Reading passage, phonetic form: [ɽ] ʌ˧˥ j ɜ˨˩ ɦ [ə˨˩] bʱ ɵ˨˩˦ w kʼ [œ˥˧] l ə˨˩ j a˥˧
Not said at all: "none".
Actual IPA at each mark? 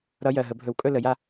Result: ɾ, ə˨˩˦, ɵ˥˧

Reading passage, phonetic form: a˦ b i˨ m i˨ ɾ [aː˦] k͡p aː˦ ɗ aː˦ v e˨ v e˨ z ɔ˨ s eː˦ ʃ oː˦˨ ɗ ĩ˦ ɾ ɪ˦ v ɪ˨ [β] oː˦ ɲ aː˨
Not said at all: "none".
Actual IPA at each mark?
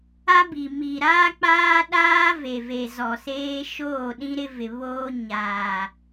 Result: aː˦, β

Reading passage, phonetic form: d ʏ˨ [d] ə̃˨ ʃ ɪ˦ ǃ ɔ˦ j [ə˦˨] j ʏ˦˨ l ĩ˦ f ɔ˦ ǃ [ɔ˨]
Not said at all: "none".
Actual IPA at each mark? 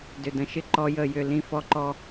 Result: d, ə˦˨, ɔ˦

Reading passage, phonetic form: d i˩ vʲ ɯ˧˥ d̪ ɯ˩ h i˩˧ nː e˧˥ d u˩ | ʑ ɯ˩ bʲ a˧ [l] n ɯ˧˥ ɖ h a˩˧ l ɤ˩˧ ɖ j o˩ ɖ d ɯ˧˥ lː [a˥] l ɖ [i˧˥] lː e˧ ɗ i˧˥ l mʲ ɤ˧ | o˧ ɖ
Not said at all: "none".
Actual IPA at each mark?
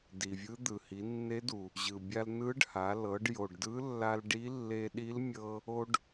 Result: l, a˧, i˧˥

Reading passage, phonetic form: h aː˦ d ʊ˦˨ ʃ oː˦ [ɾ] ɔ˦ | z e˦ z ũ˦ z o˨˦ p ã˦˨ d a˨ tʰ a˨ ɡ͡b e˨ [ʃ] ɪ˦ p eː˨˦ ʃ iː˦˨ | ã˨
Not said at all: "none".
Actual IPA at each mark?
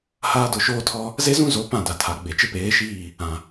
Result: tʰ, t͡ʃ

